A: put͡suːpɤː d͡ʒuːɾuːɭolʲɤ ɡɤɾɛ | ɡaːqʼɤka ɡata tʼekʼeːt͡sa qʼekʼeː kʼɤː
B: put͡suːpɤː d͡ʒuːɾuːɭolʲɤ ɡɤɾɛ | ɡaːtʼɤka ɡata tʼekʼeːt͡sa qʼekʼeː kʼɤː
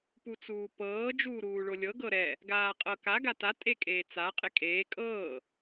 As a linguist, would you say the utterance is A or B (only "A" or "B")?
A